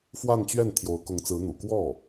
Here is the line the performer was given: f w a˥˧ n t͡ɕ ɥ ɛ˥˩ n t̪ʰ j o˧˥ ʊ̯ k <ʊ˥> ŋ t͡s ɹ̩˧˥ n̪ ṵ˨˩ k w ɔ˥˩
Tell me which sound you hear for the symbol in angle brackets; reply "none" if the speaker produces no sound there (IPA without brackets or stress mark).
ʊ˧˥